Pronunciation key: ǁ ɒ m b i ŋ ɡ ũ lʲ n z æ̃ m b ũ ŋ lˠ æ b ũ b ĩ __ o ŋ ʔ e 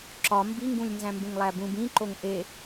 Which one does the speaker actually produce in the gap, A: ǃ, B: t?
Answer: A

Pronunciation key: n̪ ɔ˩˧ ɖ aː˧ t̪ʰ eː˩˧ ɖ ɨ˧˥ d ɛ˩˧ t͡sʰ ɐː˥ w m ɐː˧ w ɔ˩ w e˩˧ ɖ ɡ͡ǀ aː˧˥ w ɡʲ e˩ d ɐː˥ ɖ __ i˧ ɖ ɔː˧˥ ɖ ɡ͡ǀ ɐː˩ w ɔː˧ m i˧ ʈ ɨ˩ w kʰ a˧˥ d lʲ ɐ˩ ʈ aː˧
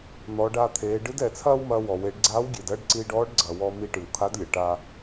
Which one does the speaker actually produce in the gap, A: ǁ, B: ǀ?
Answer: B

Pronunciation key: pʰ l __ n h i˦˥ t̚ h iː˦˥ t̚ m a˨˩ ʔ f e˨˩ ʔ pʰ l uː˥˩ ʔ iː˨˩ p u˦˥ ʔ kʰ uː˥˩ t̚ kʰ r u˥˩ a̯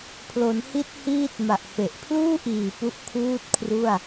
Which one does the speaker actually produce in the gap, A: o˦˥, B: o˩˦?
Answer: B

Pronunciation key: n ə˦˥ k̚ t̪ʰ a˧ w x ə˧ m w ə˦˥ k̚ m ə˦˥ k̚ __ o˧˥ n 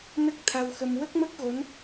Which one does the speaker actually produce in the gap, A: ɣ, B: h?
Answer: A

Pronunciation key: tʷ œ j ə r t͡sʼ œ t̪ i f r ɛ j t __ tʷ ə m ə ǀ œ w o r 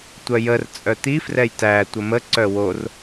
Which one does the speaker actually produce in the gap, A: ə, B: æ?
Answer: B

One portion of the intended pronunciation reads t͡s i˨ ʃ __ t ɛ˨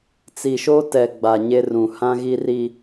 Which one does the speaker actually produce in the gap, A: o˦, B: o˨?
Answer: A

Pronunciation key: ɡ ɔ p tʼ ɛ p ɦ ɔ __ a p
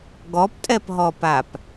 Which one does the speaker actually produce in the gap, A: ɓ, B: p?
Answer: B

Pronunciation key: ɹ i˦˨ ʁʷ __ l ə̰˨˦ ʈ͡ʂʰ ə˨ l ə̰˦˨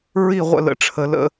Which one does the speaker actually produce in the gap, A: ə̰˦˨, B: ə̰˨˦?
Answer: A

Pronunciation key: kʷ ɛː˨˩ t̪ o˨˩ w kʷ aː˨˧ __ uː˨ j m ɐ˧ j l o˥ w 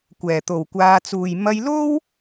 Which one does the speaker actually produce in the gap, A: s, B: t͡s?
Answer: B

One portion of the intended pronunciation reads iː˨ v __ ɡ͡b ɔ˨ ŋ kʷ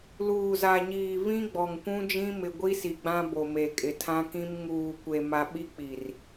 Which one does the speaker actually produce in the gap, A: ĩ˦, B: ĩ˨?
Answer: A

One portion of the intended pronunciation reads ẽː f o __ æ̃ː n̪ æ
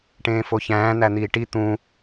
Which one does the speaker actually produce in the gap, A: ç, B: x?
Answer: A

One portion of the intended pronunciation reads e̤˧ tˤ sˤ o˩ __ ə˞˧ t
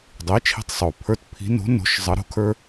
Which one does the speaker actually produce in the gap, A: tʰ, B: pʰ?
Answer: B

